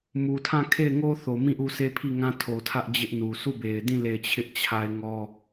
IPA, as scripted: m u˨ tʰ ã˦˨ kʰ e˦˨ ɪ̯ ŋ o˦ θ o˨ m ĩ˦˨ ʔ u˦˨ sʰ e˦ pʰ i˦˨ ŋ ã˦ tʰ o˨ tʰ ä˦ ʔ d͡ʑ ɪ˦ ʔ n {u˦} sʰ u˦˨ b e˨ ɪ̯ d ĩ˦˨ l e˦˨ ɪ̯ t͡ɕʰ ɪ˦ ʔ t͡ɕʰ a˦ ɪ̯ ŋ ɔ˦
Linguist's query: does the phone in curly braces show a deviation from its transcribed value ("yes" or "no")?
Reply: yes